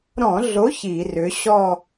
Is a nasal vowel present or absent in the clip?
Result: present